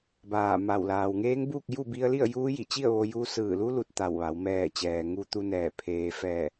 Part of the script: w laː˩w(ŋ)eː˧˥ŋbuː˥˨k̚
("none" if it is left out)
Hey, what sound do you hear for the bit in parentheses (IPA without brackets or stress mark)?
ŋ